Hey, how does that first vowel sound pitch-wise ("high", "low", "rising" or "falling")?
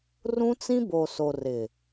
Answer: high